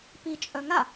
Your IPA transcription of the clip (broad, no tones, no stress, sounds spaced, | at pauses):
p i t͡ʃʼ œ ŋ a